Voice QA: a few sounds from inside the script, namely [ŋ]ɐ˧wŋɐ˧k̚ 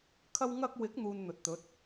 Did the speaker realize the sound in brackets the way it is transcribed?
no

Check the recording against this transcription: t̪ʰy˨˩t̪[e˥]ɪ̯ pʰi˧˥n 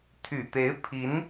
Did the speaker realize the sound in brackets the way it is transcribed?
no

